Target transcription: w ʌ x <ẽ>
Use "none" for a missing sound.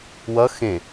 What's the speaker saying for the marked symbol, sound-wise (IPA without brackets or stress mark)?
ẽ